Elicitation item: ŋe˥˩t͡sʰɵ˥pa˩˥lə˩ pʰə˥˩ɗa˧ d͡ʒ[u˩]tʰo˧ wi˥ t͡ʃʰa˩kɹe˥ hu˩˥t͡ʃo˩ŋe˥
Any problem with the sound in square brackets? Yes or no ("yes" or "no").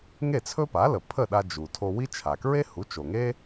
no